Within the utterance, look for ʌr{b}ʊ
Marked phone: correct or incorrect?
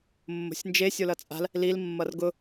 incorrect